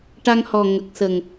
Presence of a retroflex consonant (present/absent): present